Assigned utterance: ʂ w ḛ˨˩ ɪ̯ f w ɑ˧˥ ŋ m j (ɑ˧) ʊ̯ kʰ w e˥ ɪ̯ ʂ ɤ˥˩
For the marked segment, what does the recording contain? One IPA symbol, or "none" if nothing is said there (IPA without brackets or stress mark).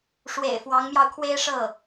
ɑ˧